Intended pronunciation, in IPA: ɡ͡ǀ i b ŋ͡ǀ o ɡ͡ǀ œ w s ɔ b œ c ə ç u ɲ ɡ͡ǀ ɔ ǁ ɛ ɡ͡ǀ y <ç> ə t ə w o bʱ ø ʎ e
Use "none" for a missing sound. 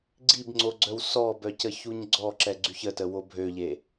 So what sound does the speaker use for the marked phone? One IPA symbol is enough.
ç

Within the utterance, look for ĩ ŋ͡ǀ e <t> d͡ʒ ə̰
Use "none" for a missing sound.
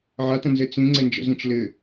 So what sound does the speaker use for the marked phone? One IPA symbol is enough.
n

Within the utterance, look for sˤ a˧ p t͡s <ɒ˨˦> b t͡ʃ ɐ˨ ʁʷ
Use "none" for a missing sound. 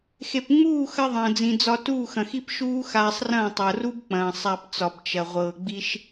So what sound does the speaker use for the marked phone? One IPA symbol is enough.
ɒ˨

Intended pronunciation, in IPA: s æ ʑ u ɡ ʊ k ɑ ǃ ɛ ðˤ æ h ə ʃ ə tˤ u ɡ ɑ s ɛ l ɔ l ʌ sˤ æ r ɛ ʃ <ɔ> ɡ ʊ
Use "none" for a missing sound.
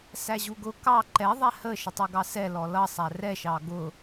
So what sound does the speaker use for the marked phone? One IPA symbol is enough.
ɑ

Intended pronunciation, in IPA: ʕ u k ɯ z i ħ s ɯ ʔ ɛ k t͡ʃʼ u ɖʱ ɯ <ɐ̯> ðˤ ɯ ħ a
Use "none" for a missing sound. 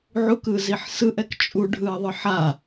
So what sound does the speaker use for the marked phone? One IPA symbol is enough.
ɐ̯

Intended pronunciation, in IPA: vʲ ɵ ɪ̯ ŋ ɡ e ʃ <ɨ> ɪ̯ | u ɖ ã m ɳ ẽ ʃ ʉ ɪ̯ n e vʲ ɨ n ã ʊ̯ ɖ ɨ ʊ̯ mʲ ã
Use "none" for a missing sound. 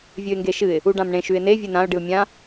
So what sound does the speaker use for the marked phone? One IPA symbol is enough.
ɨ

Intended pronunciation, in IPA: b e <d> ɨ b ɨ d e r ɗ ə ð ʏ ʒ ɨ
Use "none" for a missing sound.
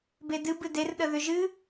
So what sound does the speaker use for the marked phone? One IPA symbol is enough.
d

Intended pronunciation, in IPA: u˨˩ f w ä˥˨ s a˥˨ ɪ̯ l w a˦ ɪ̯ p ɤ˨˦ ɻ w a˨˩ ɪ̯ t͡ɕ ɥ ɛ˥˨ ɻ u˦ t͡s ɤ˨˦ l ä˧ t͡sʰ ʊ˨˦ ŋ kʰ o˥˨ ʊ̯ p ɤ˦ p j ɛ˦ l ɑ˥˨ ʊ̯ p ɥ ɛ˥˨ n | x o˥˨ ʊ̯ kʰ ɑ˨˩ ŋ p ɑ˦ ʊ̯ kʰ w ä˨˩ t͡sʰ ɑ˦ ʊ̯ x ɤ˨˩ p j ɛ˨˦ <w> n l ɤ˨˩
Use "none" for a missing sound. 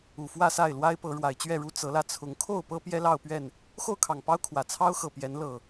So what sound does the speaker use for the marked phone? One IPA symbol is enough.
none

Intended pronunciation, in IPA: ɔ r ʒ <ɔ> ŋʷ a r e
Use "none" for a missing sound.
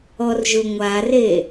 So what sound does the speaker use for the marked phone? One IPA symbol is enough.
ʊ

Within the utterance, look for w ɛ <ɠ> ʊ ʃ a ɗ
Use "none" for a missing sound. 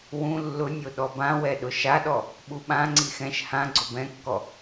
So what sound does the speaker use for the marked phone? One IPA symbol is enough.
ɗ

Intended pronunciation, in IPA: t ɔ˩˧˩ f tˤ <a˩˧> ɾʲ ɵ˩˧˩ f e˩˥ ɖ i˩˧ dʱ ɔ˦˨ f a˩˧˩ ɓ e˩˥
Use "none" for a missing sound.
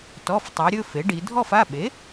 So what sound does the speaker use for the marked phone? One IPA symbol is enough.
a˩˧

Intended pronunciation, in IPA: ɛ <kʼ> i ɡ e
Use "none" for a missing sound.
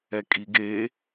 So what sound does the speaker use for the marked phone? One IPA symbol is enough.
kʼ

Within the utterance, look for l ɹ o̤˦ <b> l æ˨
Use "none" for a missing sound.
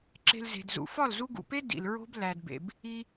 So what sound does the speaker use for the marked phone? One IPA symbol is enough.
b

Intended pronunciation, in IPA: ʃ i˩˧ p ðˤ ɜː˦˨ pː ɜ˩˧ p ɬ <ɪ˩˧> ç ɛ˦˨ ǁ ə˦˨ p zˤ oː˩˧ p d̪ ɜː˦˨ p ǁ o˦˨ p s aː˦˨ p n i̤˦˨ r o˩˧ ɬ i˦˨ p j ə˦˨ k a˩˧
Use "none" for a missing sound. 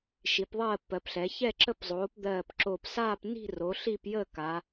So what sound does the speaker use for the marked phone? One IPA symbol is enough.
ɛ˩˧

